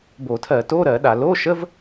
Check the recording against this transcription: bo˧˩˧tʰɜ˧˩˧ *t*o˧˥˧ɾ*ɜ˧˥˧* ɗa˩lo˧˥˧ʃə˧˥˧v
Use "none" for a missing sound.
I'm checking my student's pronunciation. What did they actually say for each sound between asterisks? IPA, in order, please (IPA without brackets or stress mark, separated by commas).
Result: t, ɜ˧˩˧